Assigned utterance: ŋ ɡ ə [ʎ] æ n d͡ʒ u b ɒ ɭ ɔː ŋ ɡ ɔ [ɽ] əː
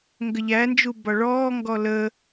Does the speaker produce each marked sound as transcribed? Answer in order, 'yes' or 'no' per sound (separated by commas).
yes, no